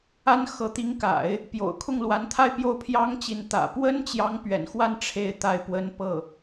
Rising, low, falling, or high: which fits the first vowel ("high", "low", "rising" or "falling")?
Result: high